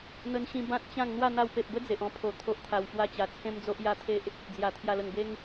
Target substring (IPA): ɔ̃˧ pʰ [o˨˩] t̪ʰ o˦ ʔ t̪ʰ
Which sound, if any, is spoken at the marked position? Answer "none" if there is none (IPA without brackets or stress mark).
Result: o˨˩